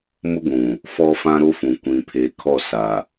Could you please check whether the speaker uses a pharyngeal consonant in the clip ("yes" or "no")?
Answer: no